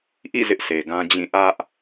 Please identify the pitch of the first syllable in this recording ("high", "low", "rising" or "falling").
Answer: falling